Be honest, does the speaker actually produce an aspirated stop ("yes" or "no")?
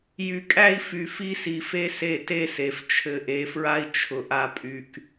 yes